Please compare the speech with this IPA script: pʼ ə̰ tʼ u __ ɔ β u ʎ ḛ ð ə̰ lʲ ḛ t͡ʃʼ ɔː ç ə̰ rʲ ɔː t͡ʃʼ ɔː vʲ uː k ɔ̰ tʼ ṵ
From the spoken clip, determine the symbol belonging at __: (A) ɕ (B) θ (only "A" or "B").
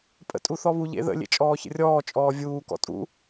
B